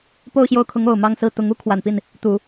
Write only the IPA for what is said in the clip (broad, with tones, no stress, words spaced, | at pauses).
po˥˧ʊ̯ɕjo˥˩ʊ̯kʰʊ˧˥ŋ o˨˩ʊ̯mɑ˥˧ŋsɹ̩˥˩ t̪ʊ˧˥ŋu˧˥kʰwa˨˩npi˥˩n | t̪u˨˩˦